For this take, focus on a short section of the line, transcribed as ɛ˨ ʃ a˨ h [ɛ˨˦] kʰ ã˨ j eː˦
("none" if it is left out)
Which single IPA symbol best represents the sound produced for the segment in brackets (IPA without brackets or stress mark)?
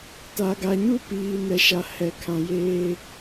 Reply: ɛ˨